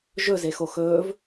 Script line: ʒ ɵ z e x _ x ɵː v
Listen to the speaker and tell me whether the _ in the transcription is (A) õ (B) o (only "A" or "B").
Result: B